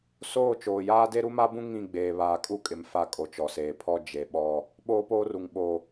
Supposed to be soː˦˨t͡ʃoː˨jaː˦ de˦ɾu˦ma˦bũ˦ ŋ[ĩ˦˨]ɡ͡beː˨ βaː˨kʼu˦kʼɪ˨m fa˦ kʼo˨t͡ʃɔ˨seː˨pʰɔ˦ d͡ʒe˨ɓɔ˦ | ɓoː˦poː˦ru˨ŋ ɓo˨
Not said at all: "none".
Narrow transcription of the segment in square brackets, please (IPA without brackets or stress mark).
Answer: ĩ˦˨